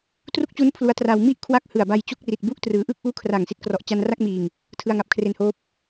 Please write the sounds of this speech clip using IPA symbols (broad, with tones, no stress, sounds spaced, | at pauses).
t r u˥˩ k̚ t͡ɕ u˦˥ n pʰ l u˦˥ a̯ t r a˧ w m i˥˩ ʔ kʰ w a˦˥ k̚ h ɯ˨˩ a̯ b a˧ j t͡ɕ u˥˩ k̚ r i˨˩ t̚ b u˥˩ ʔ t r ɯː˩˦ ʔ ɯ˥˩ k̚ ʔ uː˦˥ kʰ r a˨˩ ŋ s i˥˩ t̚ k r ɔ˨˩ ʔ t͡ɕ a˧ n r a˥˩ k̚ m iː˨˩ ŋ | tʰ ɯ˧ a̯ ŋ a˨˩ p̚ kʰ r e˧ n h oː˦˥ p̚